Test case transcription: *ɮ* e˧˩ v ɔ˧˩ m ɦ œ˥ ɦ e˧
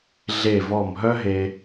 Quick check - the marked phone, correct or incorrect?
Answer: correct